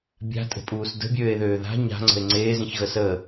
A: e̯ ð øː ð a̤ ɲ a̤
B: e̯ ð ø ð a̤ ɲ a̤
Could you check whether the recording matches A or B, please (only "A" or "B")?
A